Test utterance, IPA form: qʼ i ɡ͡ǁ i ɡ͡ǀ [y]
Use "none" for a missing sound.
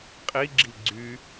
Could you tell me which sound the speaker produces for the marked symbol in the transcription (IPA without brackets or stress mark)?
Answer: y